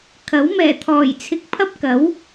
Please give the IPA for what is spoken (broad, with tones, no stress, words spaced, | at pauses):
kʰɐ˨˥w mɛː˨˩t̪ʰɔː˨˩jt͡sʰɪ˨k̚ pʰɐ˥p̚kɐ˨˥w